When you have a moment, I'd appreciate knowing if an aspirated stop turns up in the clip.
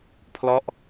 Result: yes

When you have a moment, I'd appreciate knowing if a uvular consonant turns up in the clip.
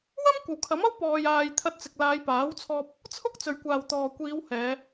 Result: no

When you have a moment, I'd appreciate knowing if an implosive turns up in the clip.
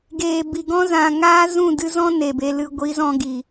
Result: no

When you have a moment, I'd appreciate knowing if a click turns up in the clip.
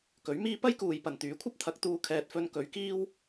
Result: no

